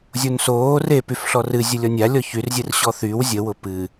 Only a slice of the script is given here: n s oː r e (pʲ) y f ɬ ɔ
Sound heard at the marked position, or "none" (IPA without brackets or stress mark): p